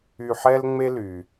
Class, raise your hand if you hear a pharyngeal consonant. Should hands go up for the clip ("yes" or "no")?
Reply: yes